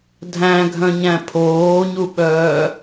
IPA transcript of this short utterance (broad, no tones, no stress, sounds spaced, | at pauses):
dʱ æ̃ ɡʱ œ̃ ɲ æ̃ pʰ oː ɲ u ɓ œː